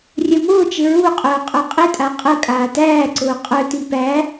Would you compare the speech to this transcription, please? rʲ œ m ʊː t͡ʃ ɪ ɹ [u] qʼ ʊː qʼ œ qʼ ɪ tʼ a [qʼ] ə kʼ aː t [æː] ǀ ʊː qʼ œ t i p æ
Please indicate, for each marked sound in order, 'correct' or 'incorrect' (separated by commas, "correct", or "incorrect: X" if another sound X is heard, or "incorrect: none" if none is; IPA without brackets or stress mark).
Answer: correct, correct, correct